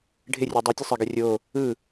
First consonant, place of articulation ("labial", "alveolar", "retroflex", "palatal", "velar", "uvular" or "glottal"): retroflex